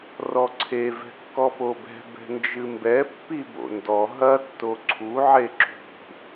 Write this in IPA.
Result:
rɔǀʰe vɛ̤kːɔpobɛ̤ bɛ̤nd͡ʒɨmbɛ pːibo̰ndɔ ɦɐ tːoǀʰu ʕeǁṳ

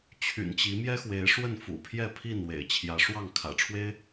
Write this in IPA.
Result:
t͡ɕʰy̰˨˩nt͡ɕi˨˦ mjɛ˦xwe˨˦ɪ̯ ʂwə˥˨nfṵ˨˩pʰjɛ˥˨pʰi˥˨n wḛ˨˩ɪ̯ t͡ɕʰjä˨˦ʂwɑ˥˨ŋ kʰä̰˨˩ʈ͡ʂʰwe˦ɪ̯

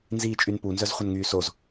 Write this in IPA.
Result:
nziːt͡ʃʼynpu nzœzχʷənŋyːsoz

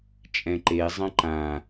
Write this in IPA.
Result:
t͡ʃʼɛ̃ǃe zˤɐ̃ǃã

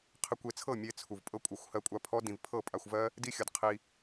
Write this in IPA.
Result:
qʰe˧kʷe˧t͡sʰɤ˦˨ mʲe˦t͡sʰu˧v pʼɤ˦kʷʼɤ˧xʷhɜ˦˨kʷʼa˦ pʰɔ˦ dĩ˧v pʰɤ˦˨pʼa˧xʷvɜ˦ | di˦xʲɤ˧dqʰi˧

